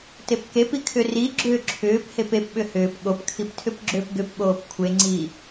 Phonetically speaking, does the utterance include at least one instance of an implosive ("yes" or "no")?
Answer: yes